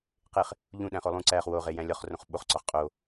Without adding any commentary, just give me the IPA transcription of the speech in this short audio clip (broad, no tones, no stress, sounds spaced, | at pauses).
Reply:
q e χ | ʎ ũ ɗ æ̃ χ o lˠ ũ ǀ æ χ w o ʁ e j æ̃ lʲ ɒ χ r õ χ ɓ o χ ǀ ɒ χ qʼ o